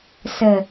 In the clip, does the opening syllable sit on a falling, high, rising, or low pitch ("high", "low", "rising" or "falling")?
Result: low